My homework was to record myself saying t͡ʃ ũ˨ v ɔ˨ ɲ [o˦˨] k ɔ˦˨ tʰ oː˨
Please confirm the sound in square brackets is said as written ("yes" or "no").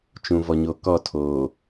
no